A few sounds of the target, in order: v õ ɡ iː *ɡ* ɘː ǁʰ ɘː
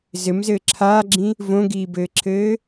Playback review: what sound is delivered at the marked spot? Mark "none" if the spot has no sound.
b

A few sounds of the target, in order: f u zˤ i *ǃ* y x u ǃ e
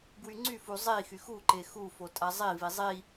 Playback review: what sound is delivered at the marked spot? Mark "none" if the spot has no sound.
x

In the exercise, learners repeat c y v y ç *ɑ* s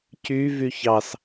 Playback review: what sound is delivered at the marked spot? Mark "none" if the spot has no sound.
ɑ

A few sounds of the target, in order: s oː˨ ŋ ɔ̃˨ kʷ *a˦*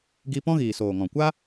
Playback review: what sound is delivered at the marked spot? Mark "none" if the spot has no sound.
a˦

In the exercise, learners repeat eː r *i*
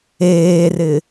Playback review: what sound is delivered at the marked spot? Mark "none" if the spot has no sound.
ɪ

